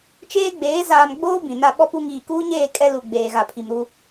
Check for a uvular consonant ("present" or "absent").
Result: absent